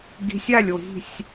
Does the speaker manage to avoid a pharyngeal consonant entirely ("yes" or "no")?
yes